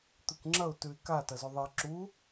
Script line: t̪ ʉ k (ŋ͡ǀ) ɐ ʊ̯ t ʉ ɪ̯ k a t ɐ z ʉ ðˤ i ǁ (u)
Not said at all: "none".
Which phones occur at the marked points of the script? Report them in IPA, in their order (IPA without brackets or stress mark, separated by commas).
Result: ŋ͡ǁ, u